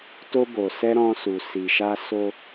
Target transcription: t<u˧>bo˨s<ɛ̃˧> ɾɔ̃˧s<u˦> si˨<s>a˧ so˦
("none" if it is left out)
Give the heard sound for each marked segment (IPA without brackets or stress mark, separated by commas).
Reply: o˧, ɛ˧, u˨, ʃ